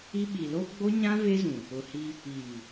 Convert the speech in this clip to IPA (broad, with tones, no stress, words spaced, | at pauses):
i˦ ɓi˨lo˦ ɡ͡bo˦ɲã˦ ve˦zũ˨ | ʊ˨hi˦ | iː˨